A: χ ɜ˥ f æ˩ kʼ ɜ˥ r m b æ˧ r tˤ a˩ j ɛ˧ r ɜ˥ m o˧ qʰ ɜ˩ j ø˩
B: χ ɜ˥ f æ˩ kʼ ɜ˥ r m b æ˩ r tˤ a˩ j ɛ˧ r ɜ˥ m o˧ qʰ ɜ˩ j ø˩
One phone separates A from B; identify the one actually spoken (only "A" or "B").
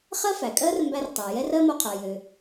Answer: A